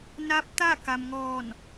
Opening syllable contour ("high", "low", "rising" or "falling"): rising